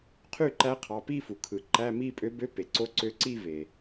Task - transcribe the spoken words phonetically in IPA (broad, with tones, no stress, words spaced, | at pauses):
qʰy˥˩ǃæ˧˥qʰɑ˩˧˩ pi˥˧fu˩ kʰɯ˩ǃæ˧˥˧ mi˥˧ pʼø˧˥bø˧˥˧ pe˩ǀo˧˥ ǀø˧˥ǀi˥˧ve˩